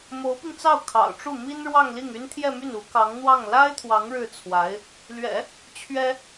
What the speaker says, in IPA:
m o˧˥ ʊ̯ p i˧ ŋ t͡s ɑ˥˩ ʊ̯ kʰ ɑ̰˨˩ ʊ̯ ʈ͡ʂ u˥˩ m i˥ n ɻ w ɑ˥˧ ŋ l i˥˩ ŋ y˥ n t̪ʰ j ɛ˥˧ m y˥˩ n u˧˥ k ɑ˧˥ ŋ n̪ w ɑ˥˩ ŋ l a˥ ɪ̯ t̪ʰ w ɑ˧˥ ŋ ɻ ɻ̩˥˩ t͡sʰ w a˧˥ ɪ̯ | l ɥ ɛ̰˨˩˦ | t͡ɕʰ ɥ ɛ˥

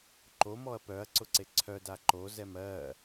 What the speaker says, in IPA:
ǃ o m ɔ ɐ̯ p œ ɐ̯ ǀ ʊ ǀ e ǀʰ œ d a ǃ o z ɛ m ɜ

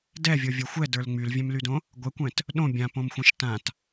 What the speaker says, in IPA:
d ɛ vʲ o vʲ ə˞ xʷ ɛ d ə˞ l ŋ͡m y l vʲ ɛ̃ m l y d õ | ɡʷ ɛ kʷ ɛ̃ t | ɗ õ bʲ ã p õ m xʷ ɛ̃ ʃ t ã t

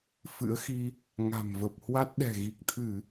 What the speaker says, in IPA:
f ɨ̰˧˥ ə̯ x i˧ | ŋ a̤˨˩ m v ə˨˩ p̚ h w a˦˥ t̚ ɗ ɛ̤˨˩ ɣ i˨˩ k̚ t̪ʰ ɨ˧˩˨

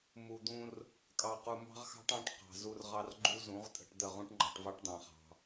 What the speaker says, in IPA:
m u˨ d̪ ũ˧ r | kʼ ɑ˨ q u˨ m ɑ̤˦ ʁ x ɑ̤˦ ʈ ɑ̃˦ ʈ q ɑ̤˨ z u˧ r ʁ ɑ˧ r ɡ͡ǃ u˦ z ũ˨˦ ʁ tʼ ə̤˧ ʈ d̪ ə˦˨ ʁ ũ˦ ʈ ŋ͡ǃ ɑ̤˧ ʈ v ɑ˦ ʈ d̪ ɑ̃˧ χ ɑ̤˧

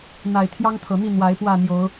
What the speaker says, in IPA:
n̪ a˨˩ ɪ̯ t̪ʰ j ɑ˦ ŋ t̪ʰ ɤ˨˩ n̪ i˥˨ n̪ w a˨˦ ɪ̯ p w ä˥˨ n̪ j o˨˦ ʊ̯

